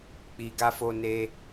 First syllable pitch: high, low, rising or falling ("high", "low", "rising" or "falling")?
low